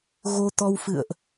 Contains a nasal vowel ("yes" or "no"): no